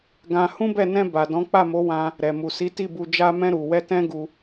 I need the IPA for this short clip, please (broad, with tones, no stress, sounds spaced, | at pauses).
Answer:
ɡ ã˧ h ũ˦ b ɛ˦˨ n ɛ̃˧ b a˨ d ɔ̃˨˦ k͡p a˦˨ m o˨˦ w ã˧ | ɾ ɛ˨ m u˨ s i˨˦ t i˦˨ b u˧ d͡ʒ a˧ m ɛ̃˧ ɾ u˨ w ɛ˧ t ɛ̃˦ ɡ u˧